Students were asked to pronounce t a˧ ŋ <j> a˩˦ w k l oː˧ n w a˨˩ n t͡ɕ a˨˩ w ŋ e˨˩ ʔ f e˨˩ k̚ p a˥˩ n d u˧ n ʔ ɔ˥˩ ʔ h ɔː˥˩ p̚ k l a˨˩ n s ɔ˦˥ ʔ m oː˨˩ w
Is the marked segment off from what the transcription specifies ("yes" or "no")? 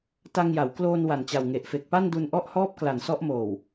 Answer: no